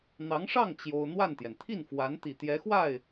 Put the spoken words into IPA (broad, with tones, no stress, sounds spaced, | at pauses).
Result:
n̪ ɑ˧˥ ŋ ʂ ɑ˥˩ ŋ t͡ɕ j o˥ ʊ̯ n̪ w a˥˩ n t̪ j ɛ˩ n t̪ʰ i˥˩ n f w a˧˥ n t̪ i˨˩ t̪ j ɛ˧˥ x w a˥˩ ɪ̯